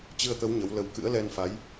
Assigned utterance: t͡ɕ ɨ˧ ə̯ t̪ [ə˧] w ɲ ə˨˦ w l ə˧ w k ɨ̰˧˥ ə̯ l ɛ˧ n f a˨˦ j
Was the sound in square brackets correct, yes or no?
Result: no